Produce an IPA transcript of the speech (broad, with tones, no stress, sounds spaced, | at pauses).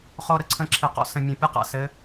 χ o˨ ɾ ə˦ ǀʰ ə̃˨˦ ǁʰ ɪ˨ q ɔ̰˨˦ s ə̃˨ mʲ ɔ̃˨ pʲ ɘ˦ q a̰˨ s ɘ˨˦